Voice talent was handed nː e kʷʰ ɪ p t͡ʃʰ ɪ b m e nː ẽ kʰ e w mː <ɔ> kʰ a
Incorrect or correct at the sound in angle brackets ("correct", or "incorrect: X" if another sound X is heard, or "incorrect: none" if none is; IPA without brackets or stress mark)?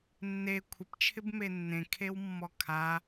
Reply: correct